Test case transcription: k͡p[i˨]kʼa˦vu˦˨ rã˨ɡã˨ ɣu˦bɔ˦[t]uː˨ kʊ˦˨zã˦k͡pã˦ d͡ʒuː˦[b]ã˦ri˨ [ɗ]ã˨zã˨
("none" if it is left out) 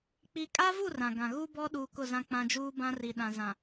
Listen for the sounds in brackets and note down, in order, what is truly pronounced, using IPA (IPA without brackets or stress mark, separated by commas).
i˨, ɗ, b, ɗ